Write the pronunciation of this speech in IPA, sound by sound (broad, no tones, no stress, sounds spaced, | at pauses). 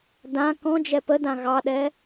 d ã k ɔ̃ d͡ʒ ɛ p ə d ã ɣ ɑ ɗ ɛ